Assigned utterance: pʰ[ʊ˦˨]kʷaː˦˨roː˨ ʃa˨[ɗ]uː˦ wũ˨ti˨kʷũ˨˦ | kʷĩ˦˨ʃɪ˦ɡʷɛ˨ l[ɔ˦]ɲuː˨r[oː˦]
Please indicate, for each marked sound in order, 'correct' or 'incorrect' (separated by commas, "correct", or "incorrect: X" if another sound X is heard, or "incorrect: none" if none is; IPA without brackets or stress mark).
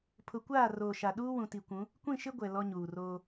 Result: incorrect: ʊ˨˦, correct, correct, correct